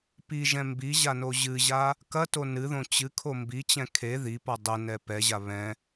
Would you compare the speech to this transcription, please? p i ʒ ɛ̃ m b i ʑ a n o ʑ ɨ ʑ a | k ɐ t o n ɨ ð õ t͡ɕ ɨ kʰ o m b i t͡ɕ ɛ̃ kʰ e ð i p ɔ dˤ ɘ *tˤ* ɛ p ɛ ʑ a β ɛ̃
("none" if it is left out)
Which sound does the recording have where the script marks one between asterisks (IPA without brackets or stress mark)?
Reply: n